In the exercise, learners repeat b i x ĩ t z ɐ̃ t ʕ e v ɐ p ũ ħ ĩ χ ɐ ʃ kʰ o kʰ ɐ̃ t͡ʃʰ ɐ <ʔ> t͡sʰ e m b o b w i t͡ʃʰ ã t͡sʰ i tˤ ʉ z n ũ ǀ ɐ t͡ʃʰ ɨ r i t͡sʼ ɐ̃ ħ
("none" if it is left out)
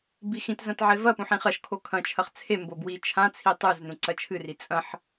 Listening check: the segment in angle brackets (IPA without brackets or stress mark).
χ